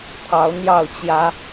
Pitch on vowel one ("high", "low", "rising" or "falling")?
rising